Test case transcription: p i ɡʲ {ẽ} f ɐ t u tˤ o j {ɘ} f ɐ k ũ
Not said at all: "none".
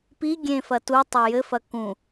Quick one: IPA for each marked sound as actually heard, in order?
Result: ẽ, ɘ

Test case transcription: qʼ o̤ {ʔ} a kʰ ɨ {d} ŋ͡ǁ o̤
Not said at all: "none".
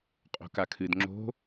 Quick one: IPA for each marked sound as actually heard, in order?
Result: k, d

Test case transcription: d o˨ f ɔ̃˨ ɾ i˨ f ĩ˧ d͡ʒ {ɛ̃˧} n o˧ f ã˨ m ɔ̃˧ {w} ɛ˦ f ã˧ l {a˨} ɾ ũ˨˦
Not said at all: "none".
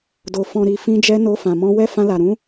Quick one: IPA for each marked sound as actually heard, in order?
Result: ɛ˧, w, a˨

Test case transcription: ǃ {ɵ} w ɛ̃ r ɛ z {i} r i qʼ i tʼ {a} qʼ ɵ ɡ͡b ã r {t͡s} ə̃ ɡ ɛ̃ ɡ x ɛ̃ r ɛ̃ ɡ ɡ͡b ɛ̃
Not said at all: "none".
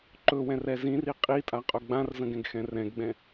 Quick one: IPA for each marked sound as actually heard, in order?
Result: ɵ, ĩ, a, z

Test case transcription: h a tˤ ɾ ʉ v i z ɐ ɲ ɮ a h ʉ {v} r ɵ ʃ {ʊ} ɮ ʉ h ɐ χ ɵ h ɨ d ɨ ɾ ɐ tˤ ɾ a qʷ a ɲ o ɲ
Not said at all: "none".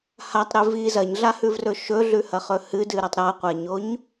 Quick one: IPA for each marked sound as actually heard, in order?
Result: v, ɵ

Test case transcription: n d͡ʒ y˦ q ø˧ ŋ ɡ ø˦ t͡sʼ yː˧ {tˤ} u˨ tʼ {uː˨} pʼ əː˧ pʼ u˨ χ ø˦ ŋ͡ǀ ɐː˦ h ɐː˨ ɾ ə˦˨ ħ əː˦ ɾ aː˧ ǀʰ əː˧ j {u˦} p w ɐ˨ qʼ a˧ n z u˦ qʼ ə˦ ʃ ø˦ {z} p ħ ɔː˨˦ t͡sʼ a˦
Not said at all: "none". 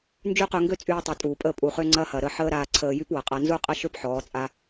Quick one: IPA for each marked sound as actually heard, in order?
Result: tˤ, uː˨, y˦, none

